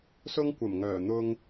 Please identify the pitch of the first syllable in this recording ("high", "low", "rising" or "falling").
high